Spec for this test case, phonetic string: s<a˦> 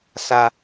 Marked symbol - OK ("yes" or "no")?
yes